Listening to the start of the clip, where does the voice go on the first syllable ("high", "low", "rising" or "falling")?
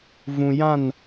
low